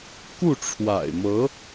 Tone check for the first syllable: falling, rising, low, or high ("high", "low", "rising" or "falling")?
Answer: falling